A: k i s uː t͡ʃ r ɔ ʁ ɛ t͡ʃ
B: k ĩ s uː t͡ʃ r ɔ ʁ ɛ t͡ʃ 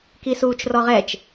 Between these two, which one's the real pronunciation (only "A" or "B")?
A